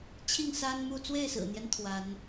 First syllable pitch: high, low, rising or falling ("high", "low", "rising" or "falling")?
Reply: falling